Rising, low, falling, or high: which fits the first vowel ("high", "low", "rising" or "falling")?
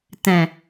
low